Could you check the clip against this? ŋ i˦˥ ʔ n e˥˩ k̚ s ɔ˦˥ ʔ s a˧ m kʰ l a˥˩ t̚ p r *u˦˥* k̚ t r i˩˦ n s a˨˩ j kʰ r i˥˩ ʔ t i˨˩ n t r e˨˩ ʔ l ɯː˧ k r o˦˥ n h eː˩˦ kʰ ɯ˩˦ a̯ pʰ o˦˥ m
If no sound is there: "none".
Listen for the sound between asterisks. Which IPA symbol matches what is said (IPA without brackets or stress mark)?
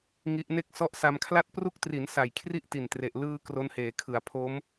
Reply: u˦˥